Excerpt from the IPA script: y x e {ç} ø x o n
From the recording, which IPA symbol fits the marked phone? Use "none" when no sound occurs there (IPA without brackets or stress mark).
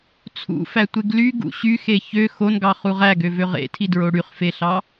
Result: ç